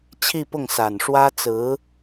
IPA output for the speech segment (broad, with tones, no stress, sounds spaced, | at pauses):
t͡ɕʰ i˥˧ p ʊ˥˩ ŋ s a˨˩ n ʂ w ä˥ t͡s ɹ̩˧˥